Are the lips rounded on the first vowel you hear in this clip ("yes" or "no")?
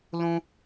yes